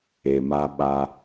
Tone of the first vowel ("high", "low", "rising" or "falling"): low